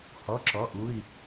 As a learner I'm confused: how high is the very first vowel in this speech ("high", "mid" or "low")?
mid